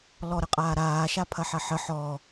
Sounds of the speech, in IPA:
l ɔ ɾ ə qʼ aː ɾ aː ʃ a pʰ ɐ ħ ɐ ħ ə ħ ɔ

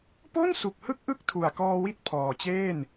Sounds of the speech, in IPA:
p o˥˩ n s u˨˩ k̚ h ɯ˥˩ k̚ ʔ ɯ˥˩ k̚ tʰ u˨˩ a̯ k ɔː˧ w i˥˩ t̚ pʰ ɔː˨˩ t͡ɕ eː˥˩ n

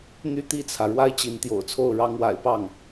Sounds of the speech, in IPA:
n̪ y˥˧ t̪ i˥˩ t͡sʰ ä˩ ɻ w a˥ ɪ̯ t͡ɕ i˧˥ n t̪ j o̰˨˩ ʊ̯ t͡sʰ o˥˩ ʊ̯ ɻ ɑ˧˥ ŋ w a̰˨˩ ɪ̯ p ɑ˥˩ ŋ

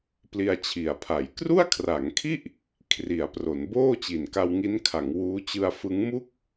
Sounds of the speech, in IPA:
p l i˧ a̯ t͡ɕʰ i˨˩ a̯ pʰ a˩˦ j k r u˥˩ a̯ kʰ r a˩˦ ŋ kʰ i˥˩ ʔ | kʰ r i˩˦ a̯ p r o˩˦ n b oː˥˩ t͡ɕ i˨˩ n k a˧ w ŋ i˦˥ n kʰ a˩˦ ŋ w uː˦˥ t͡ɕ ɯ˧ a̯ f ɯ˦˥ ŋ m u˥˩ k̚

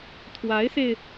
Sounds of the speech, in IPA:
t̪ʰ w a˧˥ ɪ̯ s e˧ ɪ̯

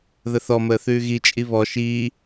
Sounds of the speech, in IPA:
ð ə θ ɔ m əː θ ʉː ɣ i t͡ʃʼ i β ɔ ʃ iː

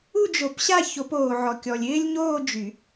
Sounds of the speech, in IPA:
u˥˧ d͡ʒ o˨˩˦ p ɕ a˥˧ ç o˨˩˦ p oː˨ ʕ ɔ˨ kʲ ɔ˨ lʲ ɪː˥ lʲ ɲ oː˥˧ d͡ʒ y˨˩˦

